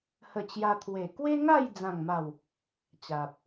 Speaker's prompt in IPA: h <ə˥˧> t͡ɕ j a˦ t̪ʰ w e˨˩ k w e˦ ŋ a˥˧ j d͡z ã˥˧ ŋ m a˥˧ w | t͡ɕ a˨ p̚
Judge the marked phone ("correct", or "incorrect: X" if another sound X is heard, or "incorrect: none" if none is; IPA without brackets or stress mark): correct